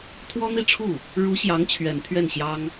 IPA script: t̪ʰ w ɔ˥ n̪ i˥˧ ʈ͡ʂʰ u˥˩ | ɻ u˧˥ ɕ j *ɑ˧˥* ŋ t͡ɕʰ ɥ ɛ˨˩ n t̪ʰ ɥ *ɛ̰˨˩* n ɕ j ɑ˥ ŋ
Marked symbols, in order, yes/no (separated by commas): yes, no